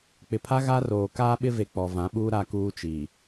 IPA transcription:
k͡p ɪ˨ pʰ a˦ ɣ a˦ r oː˨ k aː˦ ɓ ɪ˦ v e˨ k͡p ɔ˨ v ã˨˦ ɓ uː˦ ɾ a˦ k uː˦ t͡ʃ i˨

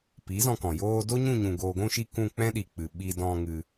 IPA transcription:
p i˨˦ z ɔ̃˧ k ɔ̃˨ j oː˧ d o˦ ɲ ũ˦˨ ɲ ũ˨ ɡ oː˨ ɡʷ ũ˦˨ ʃ i˦˨ k ũ˦˨ k͡p ɛ̃˦ ɗ i˨ k͡p ɨ˨ ɓ i˧ d ɔ̃˧ ŋ ɨ˧

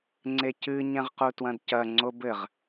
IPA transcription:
ŋ͡ǀ e c ɨ ɲ ɛ̃ ʁ q u t w ɐ̃ d c ɐ ŋ͡ǀ o b ɘ ʁ

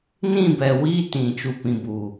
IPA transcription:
n ĩ˦˨ b ɛ˨ w i˦ t ĩ˨ t͡ʃ u˨ p ĩ˨ b uː˨

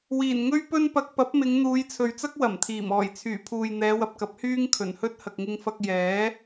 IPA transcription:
w iː˨˩ n ŋ ɵ˥ ɥ p ɵ˥ n p ɐ˧ k̚ p ɐ˨˥ p̚ m ɪ˨˧ ŋ n̪ uː˨˧ j t͡sʰ ɵ˨ ɥ t͡s ɐ˥ k̚ w ɐ˨˩ m t̪ʰ iː˨˩ m ɔː˨˩ j t͡sʰ yː˨˩ pʰ uː˨ j n̪ ɛː˨˧ w ɐ˨ p̚ k ɐ˨˥ p̚ h yː˥ ŋ kʰ ɵ˨˩ n h ɵ˥ t̚ h ɐ˨ k̚ ŋ ɪ˧ ŋ f ɐ˧ k̚ j ɛː˨˥

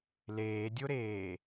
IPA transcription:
l eː dʲ o ɾ eː

